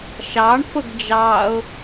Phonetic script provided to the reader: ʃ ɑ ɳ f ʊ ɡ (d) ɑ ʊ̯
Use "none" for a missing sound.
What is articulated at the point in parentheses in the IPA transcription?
d͡ʒ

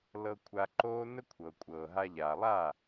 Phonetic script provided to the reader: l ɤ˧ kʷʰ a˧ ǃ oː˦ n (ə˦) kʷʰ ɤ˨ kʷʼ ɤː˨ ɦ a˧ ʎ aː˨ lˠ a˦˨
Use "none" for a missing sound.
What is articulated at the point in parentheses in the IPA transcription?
ə˦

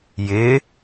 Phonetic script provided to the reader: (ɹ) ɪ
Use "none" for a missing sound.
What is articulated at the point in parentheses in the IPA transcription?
j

